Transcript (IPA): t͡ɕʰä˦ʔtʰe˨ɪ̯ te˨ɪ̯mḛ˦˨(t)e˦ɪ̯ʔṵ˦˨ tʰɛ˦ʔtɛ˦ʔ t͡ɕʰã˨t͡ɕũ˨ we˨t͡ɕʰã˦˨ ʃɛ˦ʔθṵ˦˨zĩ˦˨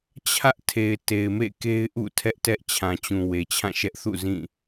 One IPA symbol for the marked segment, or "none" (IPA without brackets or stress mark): k